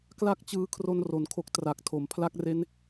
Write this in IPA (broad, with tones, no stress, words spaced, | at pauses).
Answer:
kla˥˩k̚t͡ɕɯː˦˥kʰro˧n ro˩˦nkʰo˦˥k̚ tra˨˩k̚tʰo˩˦m pʰla˦˥k̚re˦˥n